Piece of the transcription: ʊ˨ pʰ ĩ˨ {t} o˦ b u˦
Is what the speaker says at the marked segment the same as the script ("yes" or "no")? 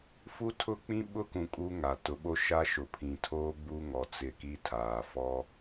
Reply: no